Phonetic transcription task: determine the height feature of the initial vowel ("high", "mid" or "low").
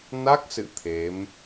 low